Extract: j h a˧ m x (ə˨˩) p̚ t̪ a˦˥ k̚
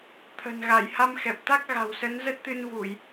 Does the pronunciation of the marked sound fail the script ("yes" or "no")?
yes